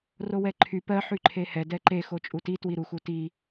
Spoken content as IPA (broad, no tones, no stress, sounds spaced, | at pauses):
r o w ɛ ǃʰ y p ɜ ħ y ǃʰ e h ɛ d ɛ ǃ e x o t͡ʃʼ u t i t w i ɾ u x u t i